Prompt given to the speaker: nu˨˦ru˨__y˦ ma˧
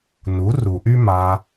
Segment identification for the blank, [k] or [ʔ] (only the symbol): ʔ